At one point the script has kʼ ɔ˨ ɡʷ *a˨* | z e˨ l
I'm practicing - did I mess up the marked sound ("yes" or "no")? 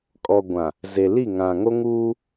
yes